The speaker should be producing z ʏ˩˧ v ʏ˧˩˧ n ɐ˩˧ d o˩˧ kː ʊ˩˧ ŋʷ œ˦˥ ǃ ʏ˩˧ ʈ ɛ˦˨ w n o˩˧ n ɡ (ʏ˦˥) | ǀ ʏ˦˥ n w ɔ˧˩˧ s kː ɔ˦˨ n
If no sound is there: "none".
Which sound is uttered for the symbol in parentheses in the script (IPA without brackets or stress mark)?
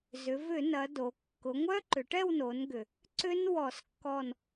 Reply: ʏ˩